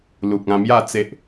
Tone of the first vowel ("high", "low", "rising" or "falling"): low